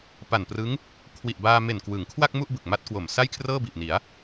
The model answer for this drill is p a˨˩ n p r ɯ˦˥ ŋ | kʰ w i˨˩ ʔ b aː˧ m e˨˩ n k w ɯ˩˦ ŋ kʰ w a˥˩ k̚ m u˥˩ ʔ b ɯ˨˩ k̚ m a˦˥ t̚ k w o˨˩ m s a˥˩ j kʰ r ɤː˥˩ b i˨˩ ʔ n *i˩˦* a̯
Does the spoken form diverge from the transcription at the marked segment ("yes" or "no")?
no